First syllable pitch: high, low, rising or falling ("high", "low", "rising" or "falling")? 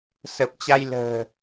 low